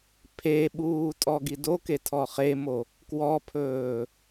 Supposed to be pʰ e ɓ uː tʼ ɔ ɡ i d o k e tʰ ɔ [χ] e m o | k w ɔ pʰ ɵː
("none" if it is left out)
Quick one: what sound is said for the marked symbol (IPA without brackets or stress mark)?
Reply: χ